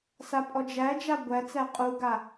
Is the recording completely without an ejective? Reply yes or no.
no